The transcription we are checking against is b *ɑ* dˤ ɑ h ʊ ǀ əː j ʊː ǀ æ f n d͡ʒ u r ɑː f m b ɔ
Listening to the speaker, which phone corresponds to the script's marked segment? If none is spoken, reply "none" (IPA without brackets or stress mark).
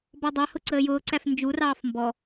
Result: ɒ